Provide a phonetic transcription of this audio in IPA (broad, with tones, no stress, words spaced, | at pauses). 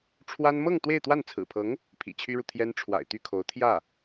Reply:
ʈ͡ʂʰwa˥n mɤ˥˧ŋ t̪we˥˧ɪ̯t̪wa˥˩n t͡sʰɹ̩˨˩pʰɤ˧˥ŋ | pʰḭ˨˩t͡ɕʰy˥ɻu˨ t̪ʰjɛ˥n ʈ͡ʂʰwa̰˨˩ɪ̯t̪y˥˩kʰo˧˥ʊ̯ t̪ʰjä˥˩